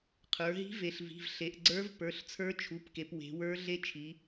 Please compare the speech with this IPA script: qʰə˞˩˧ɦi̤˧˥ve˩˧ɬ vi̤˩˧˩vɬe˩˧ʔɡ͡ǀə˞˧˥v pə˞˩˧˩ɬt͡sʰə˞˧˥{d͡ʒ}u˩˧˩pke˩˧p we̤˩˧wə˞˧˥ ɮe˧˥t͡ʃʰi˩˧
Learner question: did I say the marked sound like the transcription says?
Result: no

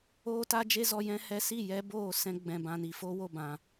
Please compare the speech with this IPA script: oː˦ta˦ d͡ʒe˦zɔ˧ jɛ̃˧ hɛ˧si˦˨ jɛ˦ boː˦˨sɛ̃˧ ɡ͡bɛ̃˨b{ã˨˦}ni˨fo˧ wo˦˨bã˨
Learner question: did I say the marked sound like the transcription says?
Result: no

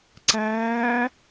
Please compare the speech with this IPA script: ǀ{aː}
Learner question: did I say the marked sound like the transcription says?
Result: no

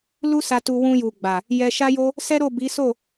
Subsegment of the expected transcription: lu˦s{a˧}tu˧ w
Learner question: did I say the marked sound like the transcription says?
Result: yes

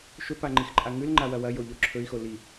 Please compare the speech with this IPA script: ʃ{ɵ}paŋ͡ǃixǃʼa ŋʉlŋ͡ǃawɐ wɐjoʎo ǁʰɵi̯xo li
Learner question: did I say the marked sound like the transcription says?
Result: yes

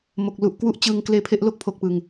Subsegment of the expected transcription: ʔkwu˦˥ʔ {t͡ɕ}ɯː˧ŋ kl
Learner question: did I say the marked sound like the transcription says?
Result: yes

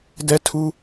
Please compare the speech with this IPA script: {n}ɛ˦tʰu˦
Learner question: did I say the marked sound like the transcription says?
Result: no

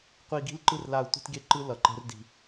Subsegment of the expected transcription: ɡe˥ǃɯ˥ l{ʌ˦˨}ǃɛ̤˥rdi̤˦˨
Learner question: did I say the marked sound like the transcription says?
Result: yes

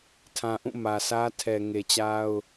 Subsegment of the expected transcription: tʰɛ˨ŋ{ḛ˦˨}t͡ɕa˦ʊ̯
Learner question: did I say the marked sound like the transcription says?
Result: no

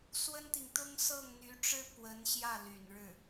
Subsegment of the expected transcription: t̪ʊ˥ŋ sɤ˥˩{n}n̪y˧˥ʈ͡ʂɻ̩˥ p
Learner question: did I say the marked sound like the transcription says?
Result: no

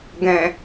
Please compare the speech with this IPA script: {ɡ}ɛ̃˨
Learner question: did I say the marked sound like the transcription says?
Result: yes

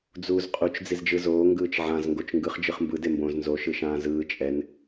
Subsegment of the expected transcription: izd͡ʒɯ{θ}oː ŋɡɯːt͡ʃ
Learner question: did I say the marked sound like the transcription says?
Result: no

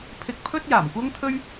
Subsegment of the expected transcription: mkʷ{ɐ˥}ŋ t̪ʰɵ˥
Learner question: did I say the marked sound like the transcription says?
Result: yes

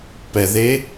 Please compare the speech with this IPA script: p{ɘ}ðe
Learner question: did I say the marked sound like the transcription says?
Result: no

